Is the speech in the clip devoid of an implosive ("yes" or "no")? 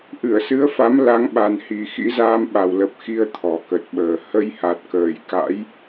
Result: no